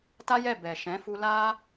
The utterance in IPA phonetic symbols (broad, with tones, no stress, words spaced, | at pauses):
ta˦jɛ˦˨ bɛ˨ʃɛ̃˨˦fu˧ la˧